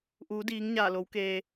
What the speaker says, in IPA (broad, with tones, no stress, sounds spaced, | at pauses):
ʔ uː˩˧ d iː˩˧ ŋ ɲ aː˧˩ l o˩˧ w k eː˩